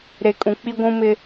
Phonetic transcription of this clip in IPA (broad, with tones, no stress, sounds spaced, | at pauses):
ɾ e˨ kʼ ũ˨ k͡p i˦ ɡʷ ũ˦ m ɪ˦